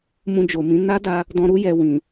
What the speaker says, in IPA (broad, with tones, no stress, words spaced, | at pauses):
mũ˧d͡ʒo˨mĩ˨˦ na˦da˧ | dɔ̃˧ɾu˦ jɛ˧wĩ˨